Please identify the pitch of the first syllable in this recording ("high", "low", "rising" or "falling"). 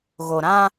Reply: low